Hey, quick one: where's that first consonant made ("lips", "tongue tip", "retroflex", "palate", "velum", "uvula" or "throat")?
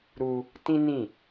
tongue tip